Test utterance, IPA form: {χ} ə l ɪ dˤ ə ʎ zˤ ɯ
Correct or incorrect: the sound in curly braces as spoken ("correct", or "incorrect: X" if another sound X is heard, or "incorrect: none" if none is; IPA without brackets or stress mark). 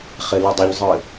correct